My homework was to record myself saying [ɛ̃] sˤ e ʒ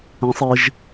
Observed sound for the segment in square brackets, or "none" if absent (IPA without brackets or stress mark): ɛ̃